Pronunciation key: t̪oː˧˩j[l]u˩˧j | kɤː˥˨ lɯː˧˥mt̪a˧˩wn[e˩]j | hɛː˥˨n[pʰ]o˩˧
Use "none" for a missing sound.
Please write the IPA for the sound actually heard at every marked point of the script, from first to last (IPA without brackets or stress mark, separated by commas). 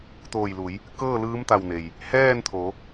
l, e˩, t̪ʰ